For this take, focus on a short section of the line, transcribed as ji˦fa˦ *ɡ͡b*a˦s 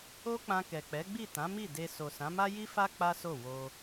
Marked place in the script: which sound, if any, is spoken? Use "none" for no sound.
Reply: k͡p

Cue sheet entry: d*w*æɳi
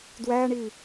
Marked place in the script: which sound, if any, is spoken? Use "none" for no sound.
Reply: w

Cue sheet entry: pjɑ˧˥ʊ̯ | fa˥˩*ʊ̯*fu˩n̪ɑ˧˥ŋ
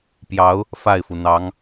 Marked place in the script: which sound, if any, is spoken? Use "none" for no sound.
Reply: ɪ̯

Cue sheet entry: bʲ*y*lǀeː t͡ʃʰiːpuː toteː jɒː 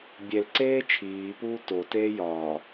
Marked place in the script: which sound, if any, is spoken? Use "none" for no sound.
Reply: e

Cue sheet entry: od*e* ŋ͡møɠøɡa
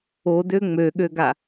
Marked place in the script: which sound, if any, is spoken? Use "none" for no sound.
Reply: ø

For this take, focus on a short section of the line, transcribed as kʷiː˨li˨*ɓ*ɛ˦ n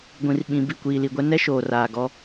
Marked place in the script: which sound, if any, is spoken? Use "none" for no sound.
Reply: ɡʷ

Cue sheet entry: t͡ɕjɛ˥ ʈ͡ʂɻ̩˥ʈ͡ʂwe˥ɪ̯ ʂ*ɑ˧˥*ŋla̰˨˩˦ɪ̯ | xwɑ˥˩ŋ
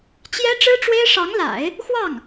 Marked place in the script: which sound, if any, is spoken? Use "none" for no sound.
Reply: ɑ˧˥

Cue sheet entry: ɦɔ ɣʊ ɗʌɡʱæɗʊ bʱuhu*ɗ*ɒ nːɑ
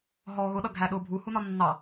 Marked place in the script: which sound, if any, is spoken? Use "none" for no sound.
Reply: n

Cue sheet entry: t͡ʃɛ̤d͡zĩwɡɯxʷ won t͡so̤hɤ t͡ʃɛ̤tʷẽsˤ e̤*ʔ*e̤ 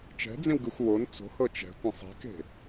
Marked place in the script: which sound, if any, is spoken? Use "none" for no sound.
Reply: k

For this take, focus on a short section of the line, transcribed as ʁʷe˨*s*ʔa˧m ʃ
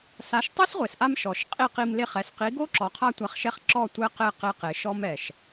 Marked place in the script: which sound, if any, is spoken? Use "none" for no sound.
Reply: s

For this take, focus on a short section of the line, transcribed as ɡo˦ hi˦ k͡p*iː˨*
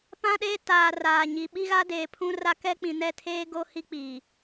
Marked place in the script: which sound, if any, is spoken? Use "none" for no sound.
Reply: iː˨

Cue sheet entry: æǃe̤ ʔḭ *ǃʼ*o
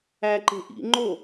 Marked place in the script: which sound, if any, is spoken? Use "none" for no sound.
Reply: ŋ͡ǃ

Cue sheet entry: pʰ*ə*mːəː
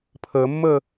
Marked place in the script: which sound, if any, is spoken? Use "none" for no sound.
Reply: əː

